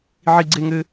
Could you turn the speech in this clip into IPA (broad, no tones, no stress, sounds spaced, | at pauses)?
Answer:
ʕ i ɡ͡ǀ e ŋ ɘ